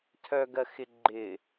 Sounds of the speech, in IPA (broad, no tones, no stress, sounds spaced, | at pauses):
tʰ œ ɡ ɜ x ɪ ɡ͡ǃ ɪ